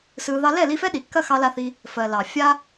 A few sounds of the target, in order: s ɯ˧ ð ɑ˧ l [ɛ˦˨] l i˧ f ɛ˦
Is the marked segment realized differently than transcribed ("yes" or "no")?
no